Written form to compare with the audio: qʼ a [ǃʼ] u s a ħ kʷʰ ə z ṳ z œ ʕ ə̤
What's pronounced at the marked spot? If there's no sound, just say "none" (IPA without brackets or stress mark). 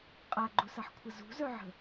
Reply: ɡ͡ǃ